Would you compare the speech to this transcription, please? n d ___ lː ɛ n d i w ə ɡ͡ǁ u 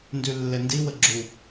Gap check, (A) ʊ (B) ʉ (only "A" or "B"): B